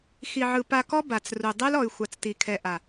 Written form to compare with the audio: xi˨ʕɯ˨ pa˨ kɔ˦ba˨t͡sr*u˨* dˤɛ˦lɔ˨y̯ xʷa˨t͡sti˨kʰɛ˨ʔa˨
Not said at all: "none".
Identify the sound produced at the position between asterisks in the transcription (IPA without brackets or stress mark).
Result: u˨